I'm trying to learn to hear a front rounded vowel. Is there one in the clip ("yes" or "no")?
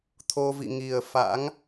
no